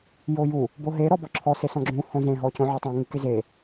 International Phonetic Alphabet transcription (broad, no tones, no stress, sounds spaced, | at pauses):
j o j u | b o ɦ e ɾ ɔ b ɔ ǁʰ ɔ s e s ɔ̃ ɡ͡ǁ ũ h õ z ẽ ɦ ɔ c õ ʕ ɔ tˤ ũ ŋ ɨ k e z e